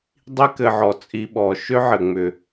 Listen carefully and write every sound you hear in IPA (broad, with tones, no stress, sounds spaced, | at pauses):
dˤ i˦ k ɘ˨ ʕ ɔ˩ t͡sʼ i˨ ɓ ɔ˩ ʃ ʏ˥ ʕ ɘ˩ ŋ͡m ʏ˩